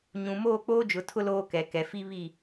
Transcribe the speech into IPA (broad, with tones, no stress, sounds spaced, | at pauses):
ɲ ũ˨ m oː˦˨ k͡p oː˦ d͡ʒ ʊ˨ tʰ ʊ˦ l oː˦ k ɛ˨ k ɛ˨ f i˦ β i˦˨